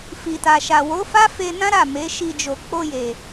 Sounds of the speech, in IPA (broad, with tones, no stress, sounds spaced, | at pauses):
f i˨ t a˨ ʃ a˨ w o˨˦ f a˦ f e˧ n ã˦ ɾ a˦˨ m e˨˦ ʃ i˧ d͡ʒ o˨ k͡p o˧ j e˨